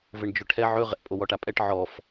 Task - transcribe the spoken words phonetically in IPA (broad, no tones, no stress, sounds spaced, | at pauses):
v ɘ ɳ d͡ʒ ɵ ʈʰ ɛ ʕ ɵ ʁ ɛ̰ pʼ o w ɔ ʈ a pʼ ɛ ʈ ʕ ɔ f